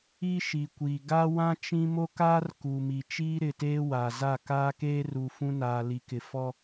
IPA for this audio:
i˦ʃi˨kʷiː˨ ɡa˦wã˦ t͡ʃĩ˦ mo˦kaː˦r ku˨ mi˨t͡ʃiː˦ɾɪ˨teː˦ wa˨za˦˨ kaː˦keː˦ru˨ fũ˦naː˨li˨kɪ˨ fɔ˦

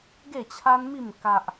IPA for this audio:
ɡe˥˧t͡ɕʰa˦nmi˥˧m ka˦ʔ

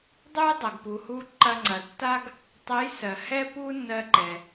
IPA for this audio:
dˤu˥j dˤɐ˩ɡpu˩hu˧ ǃɐ˧ŋ͡ǀɐ˩tːa˥ɡ | tˤɛ˧˥jsɜ˩hɛ˥ pu˥nːɜ˧ǃɛ˩

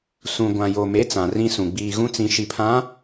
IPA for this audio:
sũ˨ɡʷã˨jo˨me˨˦ t͡sã˨rĩ˦sũ˨ ɡ͡biː˨ɣũ˦t͡sĩ˨ ʃi˨pʰã˨˦

